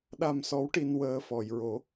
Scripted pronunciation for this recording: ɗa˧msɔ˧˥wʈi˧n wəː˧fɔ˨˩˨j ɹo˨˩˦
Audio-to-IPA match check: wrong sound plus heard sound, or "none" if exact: none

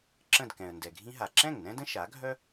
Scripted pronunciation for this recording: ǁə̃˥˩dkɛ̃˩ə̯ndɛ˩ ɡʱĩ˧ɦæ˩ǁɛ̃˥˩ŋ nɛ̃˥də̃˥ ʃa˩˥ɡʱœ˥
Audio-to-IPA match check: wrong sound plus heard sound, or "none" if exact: æ˩ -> a˩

